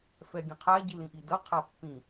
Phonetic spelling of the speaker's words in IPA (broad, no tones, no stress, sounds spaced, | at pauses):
f ɛ ɡʲ ə̃ qʰ a ɟ i l ĩ ʔ i d ʌ qʰ a pː ĩ